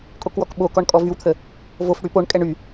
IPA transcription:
kʼokwɔkɓokɔɳ kʼɔvywt̪ʰə | vofɽy poɳkʼɛɳ y

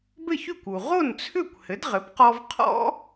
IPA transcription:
bɘ˥˩çy˥˩kʷu˩ ʁo˥˩nt͡sʰʏ˥˩kʷ hɘ˩˥dʁɘ˩˥pqɔ˧v qʰɔ̰˥

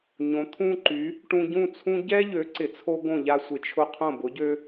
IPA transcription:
ɲõ˩˥t̪ʰũ˥ǃy˩˥ | ʈũ˧ɟũ˥˩t͡sʰũ˥ ɟɛ˥ʎø˩˥ǀɪ˩t͡sʰo˧ ɡõ˥˩ʎa˥sʷɪ˩t͡ʃʰʊ˥ qʰõ˥˩ bʊ˩˥ɟø˥

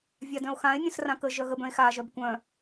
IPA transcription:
vʲadœ̃o̯xãe̯ nʲœ̃srãkə ʒœɣə bœ̃e̯xa ʒœbkʷœ̃

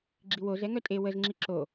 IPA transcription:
ɡ͡ǁiwozɛ ŋœtʼe wəzŋ͡ǁi ǁo

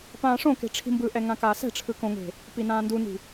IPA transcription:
pãːʂõke̤ ʈ͡ʂʰi̤mbɯʔɛ ŋãkaːsɛ̤ʈ͡ʂʰɯ kõŋe̤ | pinãːnduni̤

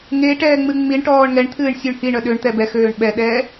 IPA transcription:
ŋe ʈɛːŋ͡mɨŋ͡miɳʈɔːɳ ŋɛɳt̪ʰɨːɳ sʲuɳhiɳœ ɗøɳt̪ɛ bɛxøːɳ ɓɛɗɛː

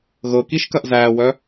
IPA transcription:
ɣɤkiʃkɐʔ zæwœ

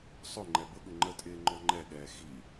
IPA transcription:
sˤʊ ŋ͡ǃɛbʊɠʊ ŋ͡ǃətʼɪː ŋ͡ǃɔŋ͡ǃɛɠɛː xi

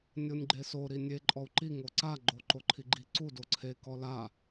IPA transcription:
nʲonʲɡ͡ǃeso ɾinʲe ǃʼɔu̯ǃi ŋoǀa ɡ͡ǃoǃoǃʰiɡ͡ǃi ǀu doǀʰe kɔla

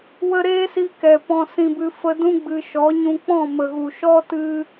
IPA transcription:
wə˧ ɾeː˦si˧kɛ˨ pɔ̃˧sĩ˧bɨ˧ fə˧dũ˦ ɡ͡bɨ˧ ʃɔ˨˦ɲũ˧ k͡pɔ̃˦˨mə˨ɣu˨ ʃɔ˦tɨ˧

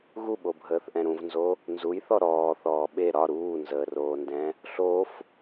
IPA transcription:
ɣuɓobʱəːθʔɛ̃ ɾũvnzo | nzujθɔ ɾɔːθɔː ɓe ɾɒ ɾuːnzəːroːndɛ̃ | ɬof

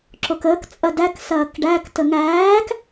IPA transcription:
ǁokəːk t͡sʼɐdæk sɐːkɖæk təŋæːk

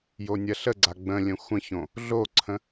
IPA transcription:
jonʲɐɬəɡ͡ǀa ɡ͡bə̃lʲə̃ xʷə̃çõ | ɮoǀʰə̃

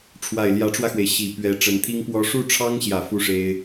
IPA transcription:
ʈ͡ʂʰwa˨˩ɪ̯ljä˧˥ʈ͡ʂwä˧xwe˩ɪ̯ ɕi˨˩ pɥɛ˧˥ ʈ͡ʂə˧˥nt̪ʰi˥ŋpwɔ˥ ʂu˥˩ʈ͡ʂʰɑ˥ŋɕjä˨˩ fu˥˩ʂe˥ɪ̯

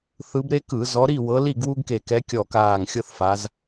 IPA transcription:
θɯ˨˦bɾe˦kɯ˧˩˧ zɔ˨˦ɾi˥˨wɤ˨˦ li˥˨ɡwu˦ɡke˧˩kɛ˨˦ kʲɔ˧˩kaː˧˩ŋ xʲɤ˦θfa˨˦z

